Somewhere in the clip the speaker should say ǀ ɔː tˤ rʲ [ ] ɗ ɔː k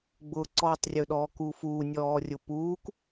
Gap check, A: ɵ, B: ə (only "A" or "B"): A